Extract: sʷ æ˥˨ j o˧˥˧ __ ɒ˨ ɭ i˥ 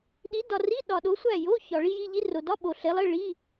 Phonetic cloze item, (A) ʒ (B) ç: B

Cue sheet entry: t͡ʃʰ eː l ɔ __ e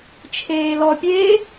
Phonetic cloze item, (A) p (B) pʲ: B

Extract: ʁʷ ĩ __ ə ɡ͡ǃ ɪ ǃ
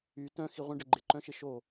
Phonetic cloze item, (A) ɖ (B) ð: A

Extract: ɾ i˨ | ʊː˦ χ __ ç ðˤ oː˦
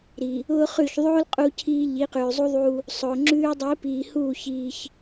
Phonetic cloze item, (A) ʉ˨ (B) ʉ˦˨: B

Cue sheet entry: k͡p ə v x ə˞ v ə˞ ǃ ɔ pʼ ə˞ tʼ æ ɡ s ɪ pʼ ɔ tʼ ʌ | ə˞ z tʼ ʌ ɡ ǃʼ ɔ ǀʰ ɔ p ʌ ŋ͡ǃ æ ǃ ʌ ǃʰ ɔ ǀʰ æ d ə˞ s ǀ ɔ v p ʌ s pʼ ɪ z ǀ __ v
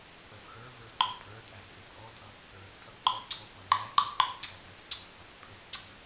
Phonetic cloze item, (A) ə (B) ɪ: B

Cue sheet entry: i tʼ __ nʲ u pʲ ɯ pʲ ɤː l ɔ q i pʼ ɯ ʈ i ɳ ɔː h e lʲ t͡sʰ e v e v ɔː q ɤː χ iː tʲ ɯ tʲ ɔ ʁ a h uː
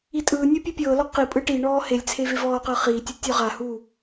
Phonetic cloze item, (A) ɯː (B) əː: A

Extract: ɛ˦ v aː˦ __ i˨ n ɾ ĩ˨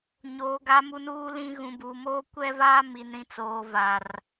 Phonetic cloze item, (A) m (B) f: A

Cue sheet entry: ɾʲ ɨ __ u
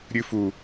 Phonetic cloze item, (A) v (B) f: B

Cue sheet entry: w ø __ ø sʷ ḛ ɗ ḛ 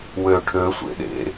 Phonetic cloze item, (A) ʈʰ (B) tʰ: A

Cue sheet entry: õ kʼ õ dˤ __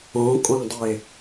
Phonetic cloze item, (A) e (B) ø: A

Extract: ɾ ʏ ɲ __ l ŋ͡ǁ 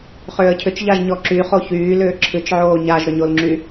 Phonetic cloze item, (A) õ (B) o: B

